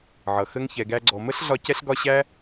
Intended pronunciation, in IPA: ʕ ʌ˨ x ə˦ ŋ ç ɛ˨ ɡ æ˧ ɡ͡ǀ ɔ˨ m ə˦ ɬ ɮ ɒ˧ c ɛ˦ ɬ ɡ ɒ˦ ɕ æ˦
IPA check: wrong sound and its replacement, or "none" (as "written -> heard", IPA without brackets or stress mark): none